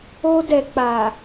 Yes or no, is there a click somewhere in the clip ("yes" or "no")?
no